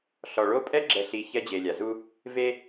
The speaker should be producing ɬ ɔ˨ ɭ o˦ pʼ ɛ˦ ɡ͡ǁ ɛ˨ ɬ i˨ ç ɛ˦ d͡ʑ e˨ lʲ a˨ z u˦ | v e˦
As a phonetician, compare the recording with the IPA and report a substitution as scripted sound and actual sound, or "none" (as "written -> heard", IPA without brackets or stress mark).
none